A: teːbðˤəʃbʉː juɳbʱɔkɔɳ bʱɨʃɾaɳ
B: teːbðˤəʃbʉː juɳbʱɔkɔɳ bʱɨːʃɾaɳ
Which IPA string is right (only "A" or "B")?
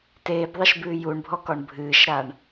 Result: B